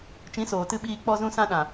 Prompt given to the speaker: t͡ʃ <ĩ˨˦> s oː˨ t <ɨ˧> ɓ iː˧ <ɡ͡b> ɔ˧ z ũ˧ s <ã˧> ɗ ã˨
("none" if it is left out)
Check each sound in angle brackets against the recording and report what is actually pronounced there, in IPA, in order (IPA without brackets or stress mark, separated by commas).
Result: ĩ˨˦, ɨ˧, k͡p, ã˧